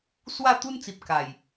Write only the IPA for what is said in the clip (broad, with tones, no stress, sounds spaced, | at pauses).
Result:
s w a˥˧ t̪ u˦ n t͡s i˨ p̚ k a˨˩ j